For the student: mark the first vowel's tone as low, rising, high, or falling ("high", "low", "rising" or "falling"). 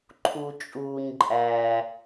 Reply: low